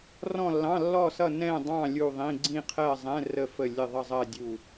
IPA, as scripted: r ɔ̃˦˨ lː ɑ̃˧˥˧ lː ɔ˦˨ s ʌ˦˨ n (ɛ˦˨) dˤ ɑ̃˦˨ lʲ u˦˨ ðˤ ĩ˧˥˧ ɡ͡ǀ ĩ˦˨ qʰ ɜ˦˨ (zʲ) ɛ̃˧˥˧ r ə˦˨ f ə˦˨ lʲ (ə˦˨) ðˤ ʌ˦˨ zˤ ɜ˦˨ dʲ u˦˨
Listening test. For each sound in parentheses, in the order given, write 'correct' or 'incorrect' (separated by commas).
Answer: incorrect, incorrect, correct